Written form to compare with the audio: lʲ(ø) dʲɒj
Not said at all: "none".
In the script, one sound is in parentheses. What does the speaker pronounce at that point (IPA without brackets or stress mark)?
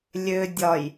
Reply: ø